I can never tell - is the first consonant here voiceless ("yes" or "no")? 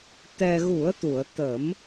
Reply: yes